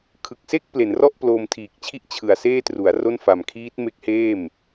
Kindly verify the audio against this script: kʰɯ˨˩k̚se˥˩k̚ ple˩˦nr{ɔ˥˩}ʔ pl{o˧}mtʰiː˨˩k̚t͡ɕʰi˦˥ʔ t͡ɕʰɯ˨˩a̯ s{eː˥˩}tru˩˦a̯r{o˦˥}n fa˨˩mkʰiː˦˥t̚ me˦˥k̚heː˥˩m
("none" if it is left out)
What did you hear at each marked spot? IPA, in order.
ɔ˥˩, oː˧, eː˥˩, o˥˩

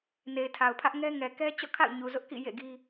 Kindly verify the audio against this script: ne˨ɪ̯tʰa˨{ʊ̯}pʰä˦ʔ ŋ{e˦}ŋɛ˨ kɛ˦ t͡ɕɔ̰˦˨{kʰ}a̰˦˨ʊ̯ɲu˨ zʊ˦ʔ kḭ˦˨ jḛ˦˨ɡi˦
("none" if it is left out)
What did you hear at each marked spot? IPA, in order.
ʊ̯, ɛ˦, kʰ

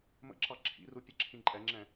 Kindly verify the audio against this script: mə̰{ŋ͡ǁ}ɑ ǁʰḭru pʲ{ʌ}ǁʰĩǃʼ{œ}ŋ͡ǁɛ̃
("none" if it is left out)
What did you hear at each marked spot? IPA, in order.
ǁ, ʌ, ɛ

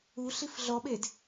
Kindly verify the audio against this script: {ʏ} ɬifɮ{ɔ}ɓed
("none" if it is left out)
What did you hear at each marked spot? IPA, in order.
u, ɔ

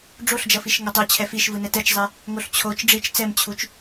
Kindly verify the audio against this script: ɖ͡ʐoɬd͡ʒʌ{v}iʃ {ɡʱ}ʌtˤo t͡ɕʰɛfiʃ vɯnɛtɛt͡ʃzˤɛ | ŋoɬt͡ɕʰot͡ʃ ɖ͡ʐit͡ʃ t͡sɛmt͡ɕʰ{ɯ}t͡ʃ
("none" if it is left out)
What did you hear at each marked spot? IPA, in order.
f, ŋ, u

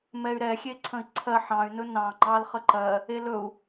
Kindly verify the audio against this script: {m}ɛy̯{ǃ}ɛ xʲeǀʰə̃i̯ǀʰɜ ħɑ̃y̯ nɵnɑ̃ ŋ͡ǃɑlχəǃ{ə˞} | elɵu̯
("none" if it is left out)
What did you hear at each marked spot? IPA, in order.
m, ɾ, ɜ

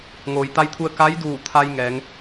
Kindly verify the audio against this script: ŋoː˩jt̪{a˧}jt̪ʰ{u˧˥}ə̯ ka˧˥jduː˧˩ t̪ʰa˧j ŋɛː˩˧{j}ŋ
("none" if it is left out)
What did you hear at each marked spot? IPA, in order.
a˧, u˧, none

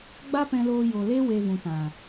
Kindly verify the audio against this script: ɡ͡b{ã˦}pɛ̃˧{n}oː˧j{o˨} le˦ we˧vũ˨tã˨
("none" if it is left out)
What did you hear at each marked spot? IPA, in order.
a˦, l, o˨

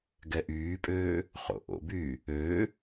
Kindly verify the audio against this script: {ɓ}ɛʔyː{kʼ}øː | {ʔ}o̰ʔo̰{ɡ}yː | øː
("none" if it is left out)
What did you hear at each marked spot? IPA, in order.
ɡ, pʼ, χ, b

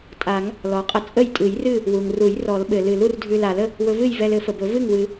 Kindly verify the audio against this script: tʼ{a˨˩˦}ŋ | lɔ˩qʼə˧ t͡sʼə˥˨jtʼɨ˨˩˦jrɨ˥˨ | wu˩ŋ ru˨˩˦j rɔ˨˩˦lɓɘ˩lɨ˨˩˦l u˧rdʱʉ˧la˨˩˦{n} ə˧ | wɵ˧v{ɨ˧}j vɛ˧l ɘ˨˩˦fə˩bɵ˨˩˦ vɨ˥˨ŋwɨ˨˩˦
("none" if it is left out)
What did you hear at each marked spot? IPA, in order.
a˨˩˦, l, ɨ˥˨

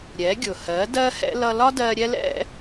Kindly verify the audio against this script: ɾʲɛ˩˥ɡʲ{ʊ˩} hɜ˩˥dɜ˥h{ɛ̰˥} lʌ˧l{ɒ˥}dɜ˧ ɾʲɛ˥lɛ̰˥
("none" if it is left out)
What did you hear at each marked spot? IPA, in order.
ʊ˩, ɛ̰˥, ɒ˥

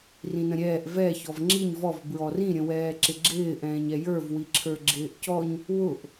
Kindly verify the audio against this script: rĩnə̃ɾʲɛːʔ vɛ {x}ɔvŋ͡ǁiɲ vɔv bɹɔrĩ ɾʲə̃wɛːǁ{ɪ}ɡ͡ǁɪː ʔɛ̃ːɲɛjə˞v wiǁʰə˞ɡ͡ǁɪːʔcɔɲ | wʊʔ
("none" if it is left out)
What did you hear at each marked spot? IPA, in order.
ç, ɪ

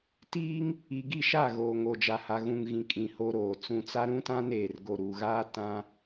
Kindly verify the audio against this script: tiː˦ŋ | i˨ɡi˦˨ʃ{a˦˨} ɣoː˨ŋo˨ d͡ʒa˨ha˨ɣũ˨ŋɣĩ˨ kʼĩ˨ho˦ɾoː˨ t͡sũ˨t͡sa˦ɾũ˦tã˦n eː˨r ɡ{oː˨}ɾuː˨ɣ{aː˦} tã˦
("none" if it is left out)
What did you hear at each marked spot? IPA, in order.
a˦˨, o˨, aː˦

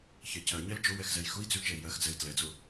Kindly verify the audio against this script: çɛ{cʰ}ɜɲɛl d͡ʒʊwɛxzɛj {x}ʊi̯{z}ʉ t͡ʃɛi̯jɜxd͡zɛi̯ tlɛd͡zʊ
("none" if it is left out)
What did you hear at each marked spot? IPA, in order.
cʰ, x, d͡z

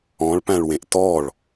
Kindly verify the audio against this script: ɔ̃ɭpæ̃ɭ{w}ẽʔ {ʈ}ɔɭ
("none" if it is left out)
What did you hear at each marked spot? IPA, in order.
w, t

